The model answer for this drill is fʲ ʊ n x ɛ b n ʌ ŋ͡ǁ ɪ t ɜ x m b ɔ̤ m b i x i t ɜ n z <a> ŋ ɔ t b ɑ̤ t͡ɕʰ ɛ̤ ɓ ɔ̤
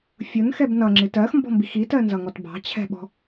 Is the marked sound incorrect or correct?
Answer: incorrect